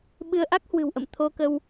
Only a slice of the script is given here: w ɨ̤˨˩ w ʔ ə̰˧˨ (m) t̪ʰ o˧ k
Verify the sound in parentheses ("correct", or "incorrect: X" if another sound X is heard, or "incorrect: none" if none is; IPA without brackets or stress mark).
correct